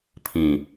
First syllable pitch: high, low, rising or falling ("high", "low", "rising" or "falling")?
low